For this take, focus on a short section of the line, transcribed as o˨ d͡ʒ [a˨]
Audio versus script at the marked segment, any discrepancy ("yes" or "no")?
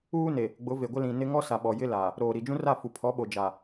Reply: no